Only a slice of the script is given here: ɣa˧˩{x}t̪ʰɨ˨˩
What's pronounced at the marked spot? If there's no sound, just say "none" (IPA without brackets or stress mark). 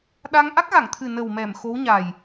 ŋ